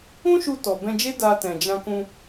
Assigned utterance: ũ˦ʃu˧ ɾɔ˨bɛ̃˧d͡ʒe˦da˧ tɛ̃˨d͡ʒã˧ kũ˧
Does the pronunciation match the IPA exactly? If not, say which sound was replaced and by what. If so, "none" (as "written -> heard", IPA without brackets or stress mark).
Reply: ɾ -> t